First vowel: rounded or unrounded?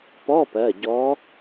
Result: rounded